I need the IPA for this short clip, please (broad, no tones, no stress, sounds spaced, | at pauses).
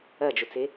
ɐ d͡ʒ o t͡s e